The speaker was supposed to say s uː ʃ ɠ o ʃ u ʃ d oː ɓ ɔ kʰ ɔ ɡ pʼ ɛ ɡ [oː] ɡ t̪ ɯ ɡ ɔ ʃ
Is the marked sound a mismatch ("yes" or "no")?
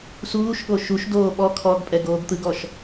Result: no